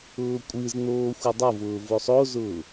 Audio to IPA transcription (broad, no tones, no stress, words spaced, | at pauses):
ʊːkʷʼɨzn̪oː xʷɨdˤovʊː vosˤozʊː